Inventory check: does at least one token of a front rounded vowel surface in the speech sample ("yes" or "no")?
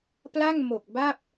no